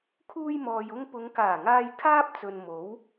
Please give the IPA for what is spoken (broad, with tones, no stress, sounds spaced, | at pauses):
kʰ uː˧ j m ɔː˨ j ʊ˧ ŋ p ʊ˨˧ ŋ k aː˨˩ ŋ aː˧ j kʰ aː˥ p̚ t͡s ɵ˨ n m o˨˥ w